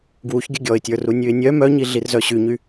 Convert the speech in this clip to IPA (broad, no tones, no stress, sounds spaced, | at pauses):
ɡ w u ç ɡʲ ə ɡʲ ɔ ɪ̯ tʲ ə˞ r u nʲ ʉ ɪ̯ nʲ œ m œ ɲ i ɮ i r z œ ɕ y ɲ y